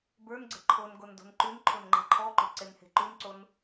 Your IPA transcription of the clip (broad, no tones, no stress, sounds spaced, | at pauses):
b ə˞ n ɡ͡ǀ ə̤ ǃʰ o n ɡ o n d o̤ n ǃ ʉ n ǃʰ o n ŋ͡ǃ e̤ ǃʰ ɔ ǃ o̤ ǀ e n h e̤ ǃ ʉ n ǀ o n